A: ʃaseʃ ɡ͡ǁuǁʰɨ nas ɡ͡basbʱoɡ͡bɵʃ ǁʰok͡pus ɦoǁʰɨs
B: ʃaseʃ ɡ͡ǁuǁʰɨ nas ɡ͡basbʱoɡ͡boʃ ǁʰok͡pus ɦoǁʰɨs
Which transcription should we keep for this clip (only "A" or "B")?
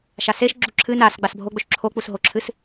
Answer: A